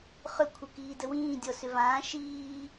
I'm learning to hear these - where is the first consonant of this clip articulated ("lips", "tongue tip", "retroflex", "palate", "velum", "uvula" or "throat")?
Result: uvula